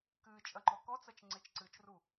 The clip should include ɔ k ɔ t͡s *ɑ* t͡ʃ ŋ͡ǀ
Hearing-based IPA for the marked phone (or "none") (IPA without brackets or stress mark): ɐ